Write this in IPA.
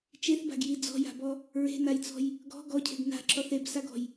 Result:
t͡ʃeθba̤ɡji d͡zɔ̤ja̤bɔ | ɹe̤najt͡sɔ̤j | ɡɔ̤ ɡɔcʰe̤ɡ na̤ǁɔθ ebsaɡɔ̤j

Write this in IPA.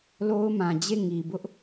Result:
lo˦ʊ̯mã˨ d͡ʑe˦˨ ŋi˨bʊ˦ʔ

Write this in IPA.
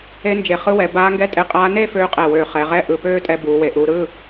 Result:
e˧˥nd͡ʒe˩˧ χɯ˧˥wɛ˩˧ baː˧˥ŋɡɛ˧˥tʼe˧qʼaː˧˥ ne˥˧føː˧qʼɛ˨˩wøː˨˩ χɛ˩˧ʁɛ˧˥˧ ʔɯ˨˩pøː˥˧tʼɛ˧ buː˩˧we˨˩ ʔuː˧ ɾɯ˧˥˧

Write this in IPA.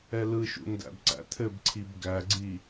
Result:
ɛlɯʃṵ ndæ̰bǀæ̰t̪ʰɘbǀʰib ɡæɡ͡ǀi

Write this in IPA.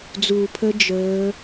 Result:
d͡zuː˧pʰə˦˥ d͡ʒəː˦˥

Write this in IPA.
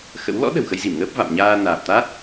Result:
xə̰˧˥w lɔ̰˧˥ ɗə̤˨˩wxə˧jzi˧˩mŋəː˦˥p̚ va̰˧˨mɲaː˧ naː˨˩p̚t̪a˦˥t̚

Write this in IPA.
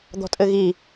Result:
d̪ɔ̤tʼɘɣi

